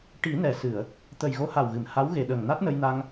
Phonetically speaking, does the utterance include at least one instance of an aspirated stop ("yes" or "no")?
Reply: no